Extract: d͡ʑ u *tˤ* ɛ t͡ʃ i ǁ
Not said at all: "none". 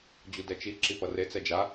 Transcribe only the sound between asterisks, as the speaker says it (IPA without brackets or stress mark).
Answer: d